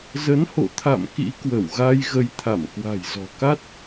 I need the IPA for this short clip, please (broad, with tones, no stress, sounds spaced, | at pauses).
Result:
z ə˨˦ n h o̰˧˨ t̪ʰ a̰˧˨ m k ḭ˧˥ k w ə˧˩ w ɣ a˧ j ɣ ə˨˦ j t̪ʰ a˧˩ m k w a̤˨˩ j z ɔ̤˨˩ k a˦˥ t̚